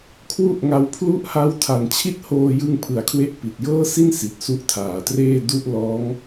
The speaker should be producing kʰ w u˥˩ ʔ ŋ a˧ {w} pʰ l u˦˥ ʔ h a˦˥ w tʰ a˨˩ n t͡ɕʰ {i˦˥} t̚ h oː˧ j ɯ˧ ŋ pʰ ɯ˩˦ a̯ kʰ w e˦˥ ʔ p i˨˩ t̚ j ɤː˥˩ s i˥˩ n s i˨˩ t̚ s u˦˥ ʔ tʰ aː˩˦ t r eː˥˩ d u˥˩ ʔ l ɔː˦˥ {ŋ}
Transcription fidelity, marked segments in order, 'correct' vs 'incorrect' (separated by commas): correct, incorrect, correct